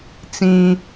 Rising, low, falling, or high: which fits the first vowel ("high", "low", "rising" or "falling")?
low